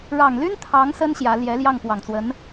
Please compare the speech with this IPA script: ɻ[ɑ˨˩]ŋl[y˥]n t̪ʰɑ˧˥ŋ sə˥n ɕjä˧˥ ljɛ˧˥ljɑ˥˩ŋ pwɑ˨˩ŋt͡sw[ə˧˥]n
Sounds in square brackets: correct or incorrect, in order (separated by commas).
correct, correct, correct